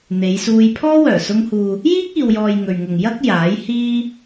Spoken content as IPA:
n̪ e˨˧ j s uː˧ j pʰ ɔː˥ w œː˨˩ s ʊ˧ ŋ h uː˨ | j iː˥ k̚ iː˨ w j ɔː˨ j ŋ ɵ˨ ɥ ŋ ʊ˨ ŋ j ɐ˥ k̚ j aː˨˥ j h iː˥

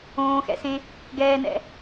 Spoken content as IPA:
õː x ɛ̰ s ẽ | ɡ ɛː n ɛ̰

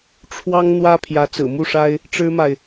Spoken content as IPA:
ʈ͡ʂʰ w ɑ˥ ŋ n̪ w ä˥ pʰ j ä˧˥ t͡s ɹ̩˨˩ m u˥˩ ʂ a˥ ɪ̯ | ʈ͡ʂ ɻ̩˥ m a˨ ɪ̯

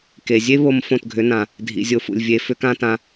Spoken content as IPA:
k e˩ zʲ e˥ β o˧ m f õ˥˩ t ɡʱ ʏ˩˥ n ã˩ | dʱ ḭ˩ zʲ o˧ f ṵ˩ lʲ vʲ e˩˥ f ʏ˩˥ k ã˥ t ã˧

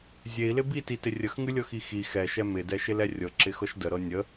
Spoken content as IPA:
zʲ e i̯ l ɪ b i t i t ɪ rʲ ə x ŋ ɨ lʲ ɤ x i x i x ɛ ʃ ɛ m ɪ d ɛ ʃ ɪ l ɛ rʲ ɤ ǁ ɪ x ɤ ʃ d ə ɾ ɤ nʲ ə

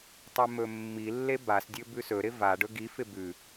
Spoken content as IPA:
tˤ e m ɵ mː i lː e b a s dʲ ɵ b ʉ s ɵ ɾ ɪ v a ɖ ɵ ɡ i f ɪ b ʉ

